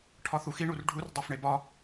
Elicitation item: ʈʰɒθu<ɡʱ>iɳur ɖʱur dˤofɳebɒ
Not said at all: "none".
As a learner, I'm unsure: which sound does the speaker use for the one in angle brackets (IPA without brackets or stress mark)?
x